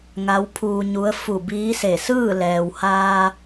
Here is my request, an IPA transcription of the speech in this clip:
ŋ a˧˥ w pʰ uː˧ ɲ u˧˥ ə̯ f u˧˩ b iː˧˥ s e˧˩ s ɯː˥˨ l ɛː˩ w h aː˧

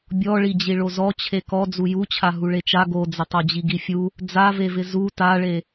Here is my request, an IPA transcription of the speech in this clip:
bʲ ɔ ɭ i d͡ʑ i ɭ o z ɔ t͡ɕʰ e k ɔ d͡z u j u t͡ɕʰ a ɦ u ɭ e t͡ʃ a ɡ o d͡z ɪ tˤ o d͡ʑ i ɡ i fʲ u | d͡z a v e v ɪ z u t a ɭ e

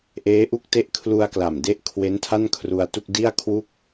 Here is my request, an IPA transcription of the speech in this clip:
ʔ eː˦˥ ʔ u˥˩ k̚ t e˥˩ ʔ kʰ l u˧ a̯ k l a˨˩ m d e˦˥ ʔ kʰ w e˦˥ n tʰ a˥˩ n kʰ r u˧ a̯ t u˥˩ k̚ d i˥˩ a̯ kʰ w u˥˩ k̚

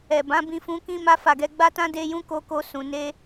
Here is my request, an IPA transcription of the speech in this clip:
ɛ˨ b ã˨˦ b ĩ˧ f ũ˧ k ĩ˦ m a˦ f a˦˨ ɡ ɛ˧ ɡ͡b a˦ t ã˦ d e˦ j ũ˦ k o˦ k o˦ s ũ˧ n e˦

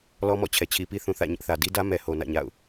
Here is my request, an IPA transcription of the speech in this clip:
l ɔ˦ m ɔ̰˦˨ t͡ɕʰ ɛ˨ t͡ɕʰ i˨ p i˦ θ ũ˨ θ ä̰˦˨ ɲ ɪ˦ ʔ θ ä˨ d i˦ d ä˦ m ɛ˨ h o˨ n ä̰˦˨ ɲ a̰˦˨ ʊ̯

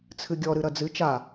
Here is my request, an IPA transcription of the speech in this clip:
t͡sʰ ɨ ɡʲ ɔ ɾ ɨ ɾ ɐ d͡z ɨ t͡ʃ a

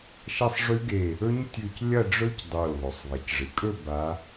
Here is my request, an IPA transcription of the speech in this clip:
ʃ ɐ˥˧ sˤ ʐ ʉ˦˥ ɡ e˧˩ | ɵ˦˥ ɲ tʲ ʉ˧˩ c lʲ ɐ˥˧ ɖ͡ʐ ɵ˦˥ c dˤ o˧˩ lʲ ðˤ ɵ˩ sˤ ðˤ e˩ c ʐ ɨ˩ kʼ ɵ˥˧ b a˨˦

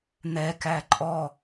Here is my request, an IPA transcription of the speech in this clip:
n̪ ɛ k æ ǃʼ ɔ

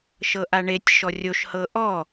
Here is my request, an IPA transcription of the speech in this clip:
ʃ ɤ ʔ a ɳ e tʲ ʃ ɔ rʲ o ʃ h ɤ ʔ ɔ

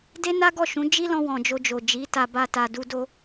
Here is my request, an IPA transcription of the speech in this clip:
d e˦ n a˦ ɡ ɔ˦˨ ʃ ũ˨˦ d͡ʒ i˦ l ɔ̃˧ w ɔ̃˨ d͡ʒ o˧ d͡ʒ o˨ d͡ʒ i˨˦ t a˧ b a˧ t a˨ d u˧ d o˧

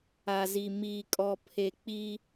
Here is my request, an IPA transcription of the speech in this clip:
a˨ z i˨ m iː˨ kʼ ɔ˨ pʰ e˨ k͡p i˦

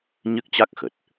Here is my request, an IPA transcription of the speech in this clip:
ɲ ɨ˦˥ k̚ t͡ɕ a˦˥ k̚ x ə˨˩ t̚

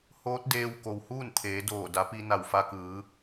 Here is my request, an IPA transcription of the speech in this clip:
h oː˧˥ t̚ d eː˧ w k o˩ w h uː˥˨ n t̪ʰ eː˩˧ d oː˧˩ d a˩˧ p i˧ n a˧˩ w f a˧ k ɯː˩˧

